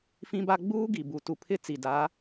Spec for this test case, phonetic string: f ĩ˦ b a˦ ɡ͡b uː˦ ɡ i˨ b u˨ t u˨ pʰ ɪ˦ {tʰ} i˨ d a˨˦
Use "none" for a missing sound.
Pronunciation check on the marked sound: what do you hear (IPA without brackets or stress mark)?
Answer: t͡s